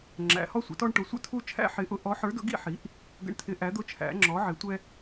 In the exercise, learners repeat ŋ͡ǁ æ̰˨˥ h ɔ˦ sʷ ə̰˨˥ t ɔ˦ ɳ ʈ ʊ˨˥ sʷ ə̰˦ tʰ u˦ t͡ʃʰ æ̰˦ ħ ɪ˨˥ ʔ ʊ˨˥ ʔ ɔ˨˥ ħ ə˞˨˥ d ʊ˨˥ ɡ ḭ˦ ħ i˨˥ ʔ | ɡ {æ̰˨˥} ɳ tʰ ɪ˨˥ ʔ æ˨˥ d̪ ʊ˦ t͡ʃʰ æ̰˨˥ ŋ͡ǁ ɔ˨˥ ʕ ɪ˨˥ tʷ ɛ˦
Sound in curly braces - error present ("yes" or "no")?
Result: yes